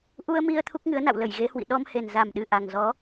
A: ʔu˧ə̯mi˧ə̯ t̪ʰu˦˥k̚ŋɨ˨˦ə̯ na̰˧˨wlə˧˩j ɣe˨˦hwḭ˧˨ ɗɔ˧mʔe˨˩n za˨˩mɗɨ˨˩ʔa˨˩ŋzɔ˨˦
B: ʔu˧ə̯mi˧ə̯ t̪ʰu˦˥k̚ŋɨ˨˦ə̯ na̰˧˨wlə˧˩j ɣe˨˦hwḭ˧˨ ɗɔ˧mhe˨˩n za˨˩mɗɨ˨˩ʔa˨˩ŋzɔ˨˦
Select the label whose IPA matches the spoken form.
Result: B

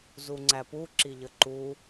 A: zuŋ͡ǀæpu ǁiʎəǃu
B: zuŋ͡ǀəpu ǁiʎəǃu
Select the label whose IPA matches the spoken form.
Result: A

